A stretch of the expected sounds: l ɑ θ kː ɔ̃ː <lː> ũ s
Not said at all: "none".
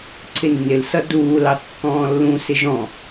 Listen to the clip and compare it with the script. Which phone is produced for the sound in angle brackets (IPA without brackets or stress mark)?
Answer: lː